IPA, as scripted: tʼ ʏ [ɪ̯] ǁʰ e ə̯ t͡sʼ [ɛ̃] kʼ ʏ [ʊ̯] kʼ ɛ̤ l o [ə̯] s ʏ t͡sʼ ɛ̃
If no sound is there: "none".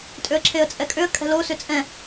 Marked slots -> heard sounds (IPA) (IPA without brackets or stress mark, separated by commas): ə̯, ɛ, ə̯, none